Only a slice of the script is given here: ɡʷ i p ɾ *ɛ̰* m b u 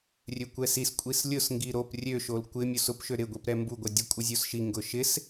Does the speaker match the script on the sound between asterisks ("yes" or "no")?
no